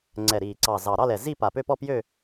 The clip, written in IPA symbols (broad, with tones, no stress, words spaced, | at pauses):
ŋ͡ǀɛ˨˩ɾiː˨˩ǀɑ˨˩zɑ˨˩ ɾɑ˥˧lɛ˨˩ zi˥˧ pa˨˩pø˥˧pɔ˥˧ pjø˥˧